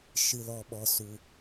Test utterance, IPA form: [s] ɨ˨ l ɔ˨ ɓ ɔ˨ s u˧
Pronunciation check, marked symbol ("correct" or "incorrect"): incorrect